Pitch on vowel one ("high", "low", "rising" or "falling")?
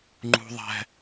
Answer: high